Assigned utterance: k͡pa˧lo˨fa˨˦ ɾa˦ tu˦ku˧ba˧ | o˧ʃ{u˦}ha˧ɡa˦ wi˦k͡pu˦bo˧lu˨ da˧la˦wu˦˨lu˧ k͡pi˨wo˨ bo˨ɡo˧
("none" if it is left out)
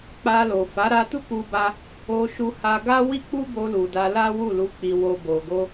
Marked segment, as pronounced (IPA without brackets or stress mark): u˧